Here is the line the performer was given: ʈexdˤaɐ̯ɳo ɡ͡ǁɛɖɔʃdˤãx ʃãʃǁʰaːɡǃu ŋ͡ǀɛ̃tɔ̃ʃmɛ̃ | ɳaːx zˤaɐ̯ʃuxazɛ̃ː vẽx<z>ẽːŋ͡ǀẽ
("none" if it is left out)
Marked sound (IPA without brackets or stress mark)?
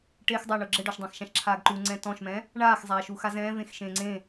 ʃ